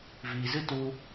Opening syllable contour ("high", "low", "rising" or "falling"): low